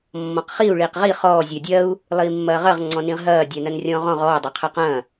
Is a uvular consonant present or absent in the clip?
present